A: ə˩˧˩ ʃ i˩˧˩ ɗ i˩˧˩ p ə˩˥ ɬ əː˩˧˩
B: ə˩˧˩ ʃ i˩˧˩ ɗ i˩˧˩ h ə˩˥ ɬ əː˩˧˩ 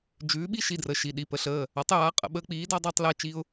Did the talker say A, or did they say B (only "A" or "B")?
A